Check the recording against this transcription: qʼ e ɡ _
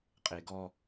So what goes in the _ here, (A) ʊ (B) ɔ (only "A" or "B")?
B